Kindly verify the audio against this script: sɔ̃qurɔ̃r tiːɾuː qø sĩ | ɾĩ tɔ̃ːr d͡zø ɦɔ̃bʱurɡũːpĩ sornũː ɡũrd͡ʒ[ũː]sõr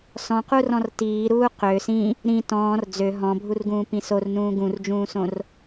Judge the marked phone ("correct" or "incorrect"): correct